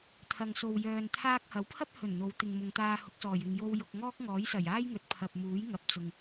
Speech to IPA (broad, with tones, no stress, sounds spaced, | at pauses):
t̪ʰ ɐ˨ ŋ s o˨ w j œː˨ n t̪ʰ aː˧ k̚ h ɐ˨˥ w pʰ ɐ˥ p̚ h ɵ˨˩ n n̪ o˨˧ w t̪ ɪ˨ ŋ m ʊ˨ ŋ t̪ aː˧ h ʊ˨˥ k̚ s ɔː˨˩ j ɪ˨ ŋ j o˧ w j ʊ˧ k̚ ŋ ɔː˥ k̚ ŋ ɔː˨˥ j s ɐ˨˩ j aː˥ j ŋ ɵ˨˥ t̚ pʰ ɐ˨ p̚ m uː˨˥ j ŋ ɐ˨˥ p̚ t͡s ʊ˨ ŋ